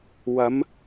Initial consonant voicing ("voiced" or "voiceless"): voiced